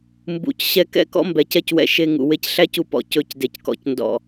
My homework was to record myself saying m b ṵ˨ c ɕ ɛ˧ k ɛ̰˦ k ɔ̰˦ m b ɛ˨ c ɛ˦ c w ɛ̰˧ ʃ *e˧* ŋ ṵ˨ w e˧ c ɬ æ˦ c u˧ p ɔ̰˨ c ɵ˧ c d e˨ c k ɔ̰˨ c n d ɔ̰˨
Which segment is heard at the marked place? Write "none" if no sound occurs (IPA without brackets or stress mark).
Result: e˧